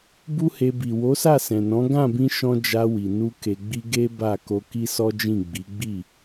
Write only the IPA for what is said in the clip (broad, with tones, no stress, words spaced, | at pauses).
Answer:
bu˦he˧ bi˨ wo˨˦sa˦˨sɛ̃˨nɔ̃˨˦ ɡã˦˨bĩ˧ʃɔ̃˧ d͡ʒa˧wi˨ nu˧ ke˧ɡ͡bi˦ ɡe˦ ba˦˨ ko˧ki˦sɔ˦d͡ʒĩ˦˨ ɡ͡bi˨˦ɡ͡bi˦˨